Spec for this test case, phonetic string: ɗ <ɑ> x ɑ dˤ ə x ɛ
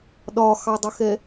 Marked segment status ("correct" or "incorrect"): incorrect